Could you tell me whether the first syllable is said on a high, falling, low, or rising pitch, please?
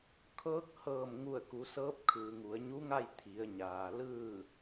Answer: rising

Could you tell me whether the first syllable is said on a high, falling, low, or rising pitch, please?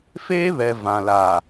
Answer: high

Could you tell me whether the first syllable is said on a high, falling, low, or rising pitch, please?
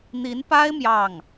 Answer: rising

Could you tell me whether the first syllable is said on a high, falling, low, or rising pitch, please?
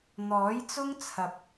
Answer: rising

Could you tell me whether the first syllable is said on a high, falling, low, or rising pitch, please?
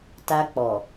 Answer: high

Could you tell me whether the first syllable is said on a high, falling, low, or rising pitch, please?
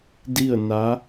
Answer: falling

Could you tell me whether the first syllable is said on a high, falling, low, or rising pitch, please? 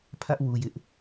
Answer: high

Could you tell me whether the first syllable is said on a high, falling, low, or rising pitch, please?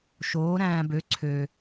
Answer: rising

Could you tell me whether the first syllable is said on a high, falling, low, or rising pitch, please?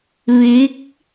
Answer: rising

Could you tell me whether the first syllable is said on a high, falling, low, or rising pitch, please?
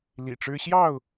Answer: low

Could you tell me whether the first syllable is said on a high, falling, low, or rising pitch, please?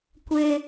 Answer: high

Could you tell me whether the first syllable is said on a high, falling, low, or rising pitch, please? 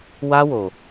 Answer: high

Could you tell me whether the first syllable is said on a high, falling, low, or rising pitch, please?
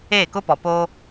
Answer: falling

